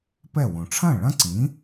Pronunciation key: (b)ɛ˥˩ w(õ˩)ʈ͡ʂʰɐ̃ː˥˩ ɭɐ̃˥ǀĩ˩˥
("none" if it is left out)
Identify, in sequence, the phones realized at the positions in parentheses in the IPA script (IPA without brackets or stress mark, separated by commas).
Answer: p, õ˩